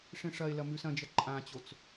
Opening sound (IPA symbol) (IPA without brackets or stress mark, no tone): ʂ